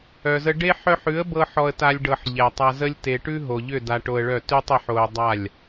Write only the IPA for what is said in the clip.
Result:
œ˨zə˧ ɖe˦ ħœ˦ħ ʉ˨˦ə̯bɤ˧ ħɔ˧ə̯ta˧lʲ ɖɤ˨ħ ʎɛ˨tˤa˧zə˦lʲ te˨ʈʉ˦ ɦo˨ʎʏ˦˨ da˧ʈo˧ə̯ɭœ˦˨ tʉ˦tˤə˨˦ħ o˧ə̯dˤa˦˨lʲ

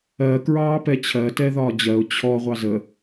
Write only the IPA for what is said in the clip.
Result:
ɜ kɹɑːpɛt͡ɕʰɜ tɛðɒːd͡ʑɜʊ̯ t͡ɕʰɔ ʁʷɑzə

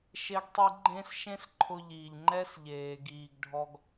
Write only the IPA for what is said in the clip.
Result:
ʃe˧ɡtˤi˧ ɡ͡ǃẽ˧s ʃẽ˦sǃʰʊ˧ʎiː˨ʎ ŋ͡ǃɛ˦sʎeː˨ ɡiː˨ɡɖʱɔ˧ɡ

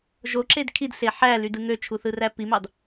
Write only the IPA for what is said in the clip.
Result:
ʒoǁed kʰidɬe ħælydɯ ŋøt͡ʃʰuθɯræ pimɑd

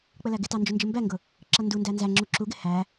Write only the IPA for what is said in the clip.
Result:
k͡pəlæɡɪtɑ nd͡ʒʊnd͡ʒəmbæŋɡʊ | ǁʌndundæ nzæŋ͡ǁu ǁuɡɪ hæ

